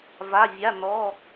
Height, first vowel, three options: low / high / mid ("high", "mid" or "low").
low